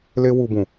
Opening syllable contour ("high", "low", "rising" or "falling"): high